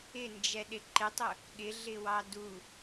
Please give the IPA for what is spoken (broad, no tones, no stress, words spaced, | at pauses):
ɪnd͡ʒɛɗɪ ǃɪtˤʊ | ɠɪɮɪwɑ du